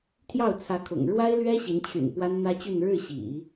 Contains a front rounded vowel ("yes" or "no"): yes